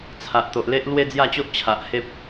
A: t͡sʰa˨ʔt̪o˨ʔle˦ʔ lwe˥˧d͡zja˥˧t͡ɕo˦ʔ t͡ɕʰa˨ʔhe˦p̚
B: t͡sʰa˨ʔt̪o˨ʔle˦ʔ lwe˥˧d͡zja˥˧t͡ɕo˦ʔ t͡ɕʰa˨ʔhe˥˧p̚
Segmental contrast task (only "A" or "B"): A